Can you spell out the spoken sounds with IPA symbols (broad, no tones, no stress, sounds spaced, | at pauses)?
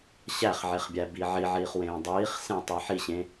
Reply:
ɕ æ χ ʕ e χ bʲ æ b i ʕ i ʕ iː χ w ẽː dˤ iː χ s ẽ tˤ i ħ i ɕ ẽ